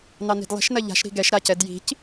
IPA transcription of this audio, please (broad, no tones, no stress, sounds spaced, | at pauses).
n ɑ n i̤ d lˠ i̤ ʃ n ɐ ʎ a̤ ʃ ɾ i̤ ɡ ɛ ʃ ɾ a c ɛ d j i̤ c